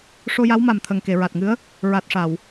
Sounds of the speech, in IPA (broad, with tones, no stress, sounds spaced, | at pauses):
ʂ o˧ j a˧˥ w m a˨˩ m t̪ʰ ə˨˩ ŋ k e˨˩˨ ɹ a˨˩ t̚ ŋ ɨ˧˥ ə̯ | ɹ a˨˩ t̚ ʂ a˨˩˨ w